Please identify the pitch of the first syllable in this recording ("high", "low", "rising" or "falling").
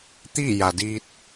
falling